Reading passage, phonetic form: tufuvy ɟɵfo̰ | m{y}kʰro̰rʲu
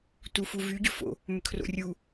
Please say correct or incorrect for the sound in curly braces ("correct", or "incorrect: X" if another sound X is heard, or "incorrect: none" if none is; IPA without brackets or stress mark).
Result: incorrect: ʏ